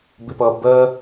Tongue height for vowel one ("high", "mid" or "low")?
high